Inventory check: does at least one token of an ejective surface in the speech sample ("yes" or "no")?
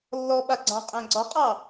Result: yes